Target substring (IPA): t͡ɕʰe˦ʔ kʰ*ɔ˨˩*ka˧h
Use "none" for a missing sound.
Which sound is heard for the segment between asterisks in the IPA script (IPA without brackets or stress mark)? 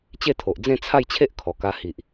ɔ˨˩